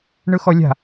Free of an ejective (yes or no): yes